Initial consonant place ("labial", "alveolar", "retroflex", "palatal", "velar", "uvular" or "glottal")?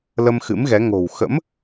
alveolar